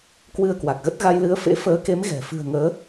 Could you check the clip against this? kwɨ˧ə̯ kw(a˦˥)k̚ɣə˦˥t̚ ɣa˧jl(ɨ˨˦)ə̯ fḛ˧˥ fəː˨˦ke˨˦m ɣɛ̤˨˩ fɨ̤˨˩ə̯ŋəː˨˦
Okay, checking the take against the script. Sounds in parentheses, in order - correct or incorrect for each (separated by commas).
incorrect, correct